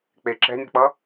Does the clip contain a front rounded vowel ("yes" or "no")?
no